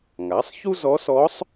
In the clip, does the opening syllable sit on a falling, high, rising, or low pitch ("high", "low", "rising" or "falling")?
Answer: rising